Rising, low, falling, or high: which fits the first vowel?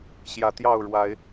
low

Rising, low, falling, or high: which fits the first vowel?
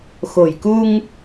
low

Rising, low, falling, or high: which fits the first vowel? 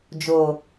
low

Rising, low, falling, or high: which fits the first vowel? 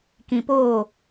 low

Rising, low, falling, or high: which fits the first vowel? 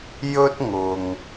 high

